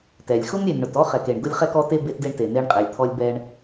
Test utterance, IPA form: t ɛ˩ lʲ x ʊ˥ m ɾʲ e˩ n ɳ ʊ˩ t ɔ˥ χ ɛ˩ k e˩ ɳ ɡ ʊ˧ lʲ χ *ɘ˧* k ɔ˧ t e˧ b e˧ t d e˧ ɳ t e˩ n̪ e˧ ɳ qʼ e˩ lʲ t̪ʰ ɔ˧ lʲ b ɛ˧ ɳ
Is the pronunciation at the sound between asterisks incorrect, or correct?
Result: incorrect